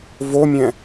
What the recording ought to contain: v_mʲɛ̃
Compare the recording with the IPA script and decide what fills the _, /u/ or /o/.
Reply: o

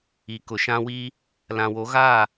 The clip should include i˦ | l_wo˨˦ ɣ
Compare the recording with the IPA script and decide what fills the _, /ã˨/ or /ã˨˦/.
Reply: ã˨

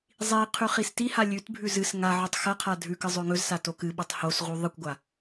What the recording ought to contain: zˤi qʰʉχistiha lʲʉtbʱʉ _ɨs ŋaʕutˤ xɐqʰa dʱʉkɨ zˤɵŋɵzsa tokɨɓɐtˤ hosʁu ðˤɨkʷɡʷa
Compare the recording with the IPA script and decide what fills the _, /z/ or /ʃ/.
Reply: z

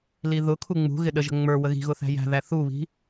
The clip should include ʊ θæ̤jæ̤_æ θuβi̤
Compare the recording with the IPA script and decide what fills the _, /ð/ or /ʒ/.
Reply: ð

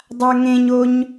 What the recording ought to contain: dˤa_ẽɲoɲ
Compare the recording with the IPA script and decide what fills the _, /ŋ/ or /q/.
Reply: ŋ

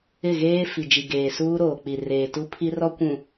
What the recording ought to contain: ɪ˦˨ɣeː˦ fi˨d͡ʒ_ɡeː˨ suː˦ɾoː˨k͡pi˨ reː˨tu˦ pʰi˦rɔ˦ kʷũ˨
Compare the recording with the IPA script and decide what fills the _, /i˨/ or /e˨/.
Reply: i˨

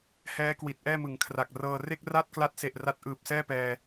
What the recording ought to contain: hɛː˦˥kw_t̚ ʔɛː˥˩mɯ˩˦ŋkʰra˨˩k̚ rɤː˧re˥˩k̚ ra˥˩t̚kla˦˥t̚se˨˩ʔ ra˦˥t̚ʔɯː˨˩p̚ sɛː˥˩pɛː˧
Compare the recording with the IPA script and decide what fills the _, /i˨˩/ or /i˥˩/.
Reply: i˨˩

